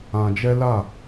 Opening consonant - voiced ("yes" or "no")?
yes